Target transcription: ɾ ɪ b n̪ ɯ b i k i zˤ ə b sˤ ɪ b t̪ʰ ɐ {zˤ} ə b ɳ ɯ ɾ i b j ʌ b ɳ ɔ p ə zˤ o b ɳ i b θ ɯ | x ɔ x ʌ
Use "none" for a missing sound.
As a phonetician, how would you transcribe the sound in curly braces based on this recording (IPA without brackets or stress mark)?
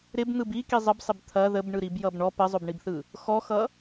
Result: ð